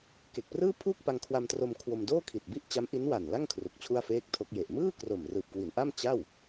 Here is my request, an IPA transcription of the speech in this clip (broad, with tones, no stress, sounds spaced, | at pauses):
k e˨˩ k̚ p r ɯː˥˩ pʰ uː˥˩ k̚ p a˧ ŋ kʰ w a˧ m t r o˧ m kʰ w o˧ m d oː˥˩ kʰ i˨˩ t̚ b i˦˥ ʔ t͡ɕ a˦˥ m ʔ i˦˥ n w a˨˩ n l a˥˩ ŋ kʰ r u˨˩ k̚ t͡ɕʰ u˥˩ a̯ f eː˥˩ k̚ tʰ o˦˥ k̚ j e˨˩ ʔ m ɯː˥˩ k r o˨˩ m r ɯː˨˩ p̚ k w i˩˦ n ʔ a˥˩ m t͡ɕ a˥˩ w